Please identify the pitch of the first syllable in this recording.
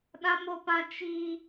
high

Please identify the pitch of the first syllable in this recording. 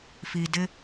low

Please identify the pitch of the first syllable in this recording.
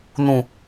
low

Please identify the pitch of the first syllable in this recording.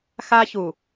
high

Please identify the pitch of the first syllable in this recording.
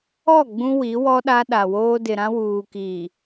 falling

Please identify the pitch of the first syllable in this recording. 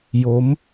rising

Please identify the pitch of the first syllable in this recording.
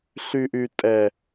high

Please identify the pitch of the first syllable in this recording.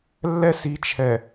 high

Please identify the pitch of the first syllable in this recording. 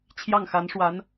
falling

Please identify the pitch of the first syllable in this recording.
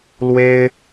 high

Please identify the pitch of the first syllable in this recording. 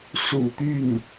low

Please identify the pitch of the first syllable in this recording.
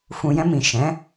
low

